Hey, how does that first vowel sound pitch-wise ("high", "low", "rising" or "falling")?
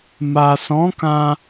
low